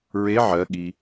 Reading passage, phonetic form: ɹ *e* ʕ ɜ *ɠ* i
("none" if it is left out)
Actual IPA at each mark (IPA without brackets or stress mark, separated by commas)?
e, ɠ